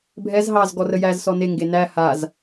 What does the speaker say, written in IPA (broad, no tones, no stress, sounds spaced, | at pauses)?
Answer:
bʱ ɛ z ɦ ɑ z ɡ ɔ r ə j æ z s ɔ n e ŋ ɡ e n æ h a z